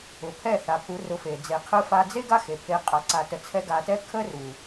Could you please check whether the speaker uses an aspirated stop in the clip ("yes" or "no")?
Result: yes